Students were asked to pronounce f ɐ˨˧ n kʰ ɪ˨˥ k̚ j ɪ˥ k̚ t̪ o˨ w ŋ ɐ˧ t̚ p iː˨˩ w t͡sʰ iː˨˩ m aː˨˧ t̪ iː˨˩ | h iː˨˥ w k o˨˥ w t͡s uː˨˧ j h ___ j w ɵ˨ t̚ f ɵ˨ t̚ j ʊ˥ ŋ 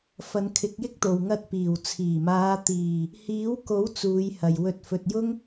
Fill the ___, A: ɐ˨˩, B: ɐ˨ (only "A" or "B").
B